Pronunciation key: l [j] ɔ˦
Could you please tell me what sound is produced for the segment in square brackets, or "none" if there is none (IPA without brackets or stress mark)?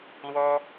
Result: w